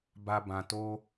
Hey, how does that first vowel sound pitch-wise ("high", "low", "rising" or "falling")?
low